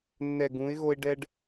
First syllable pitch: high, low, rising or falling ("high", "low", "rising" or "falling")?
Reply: low